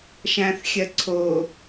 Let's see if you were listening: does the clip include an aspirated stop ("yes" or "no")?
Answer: yes